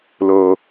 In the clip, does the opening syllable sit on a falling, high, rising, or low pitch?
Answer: low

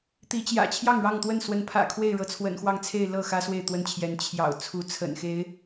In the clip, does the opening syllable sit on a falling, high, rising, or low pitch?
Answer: rising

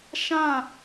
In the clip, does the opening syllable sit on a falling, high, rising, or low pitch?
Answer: falling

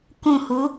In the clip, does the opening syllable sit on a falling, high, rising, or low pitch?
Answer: falling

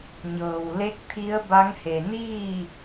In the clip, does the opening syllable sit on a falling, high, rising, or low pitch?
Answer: low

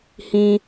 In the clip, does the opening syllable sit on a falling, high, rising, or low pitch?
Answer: high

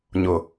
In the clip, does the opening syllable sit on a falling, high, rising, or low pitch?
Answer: low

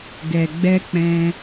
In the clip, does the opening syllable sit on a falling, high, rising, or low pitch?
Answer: low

